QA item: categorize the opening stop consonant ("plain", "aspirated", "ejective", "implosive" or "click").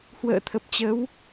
aspirated